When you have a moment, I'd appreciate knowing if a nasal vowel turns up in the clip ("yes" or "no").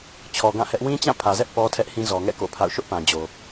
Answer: yes